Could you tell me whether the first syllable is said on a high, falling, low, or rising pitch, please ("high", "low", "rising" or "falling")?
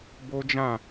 high